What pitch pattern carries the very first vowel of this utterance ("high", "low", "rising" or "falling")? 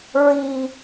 high